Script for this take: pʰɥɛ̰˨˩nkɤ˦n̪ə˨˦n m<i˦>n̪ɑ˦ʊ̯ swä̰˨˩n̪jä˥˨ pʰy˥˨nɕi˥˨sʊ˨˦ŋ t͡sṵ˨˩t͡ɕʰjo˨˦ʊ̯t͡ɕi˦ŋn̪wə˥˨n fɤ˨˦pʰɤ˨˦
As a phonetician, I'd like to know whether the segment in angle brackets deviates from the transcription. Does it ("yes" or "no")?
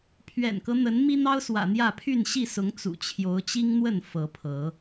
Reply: no